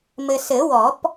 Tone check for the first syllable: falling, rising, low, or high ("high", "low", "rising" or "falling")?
low